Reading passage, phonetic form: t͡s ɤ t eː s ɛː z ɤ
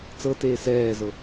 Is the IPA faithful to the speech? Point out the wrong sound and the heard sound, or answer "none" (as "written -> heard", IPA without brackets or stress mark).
none